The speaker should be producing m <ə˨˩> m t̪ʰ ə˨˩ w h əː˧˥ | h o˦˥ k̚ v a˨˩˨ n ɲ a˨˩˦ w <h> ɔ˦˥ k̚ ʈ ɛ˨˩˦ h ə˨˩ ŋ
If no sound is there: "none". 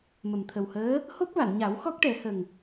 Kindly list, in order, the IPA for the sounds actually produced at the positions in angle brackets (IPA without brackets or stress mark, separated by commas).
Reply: ə˨˩, x